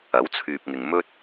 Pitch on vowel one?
rising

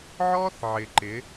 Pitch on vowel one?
high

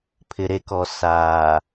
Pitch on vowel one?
low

